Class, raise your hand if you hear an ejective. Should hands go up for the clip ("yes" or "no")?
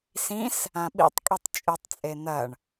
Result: yes